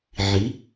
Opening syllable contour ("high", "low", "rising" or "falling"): rising